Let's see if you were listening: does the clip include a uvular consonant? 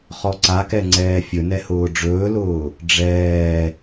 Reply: yes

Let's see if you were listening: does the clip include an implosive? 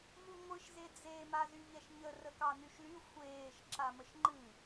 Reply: no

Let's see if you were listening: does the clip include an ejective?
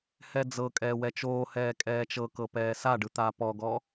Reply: yes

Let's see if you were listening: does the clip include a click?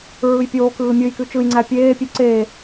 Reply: yes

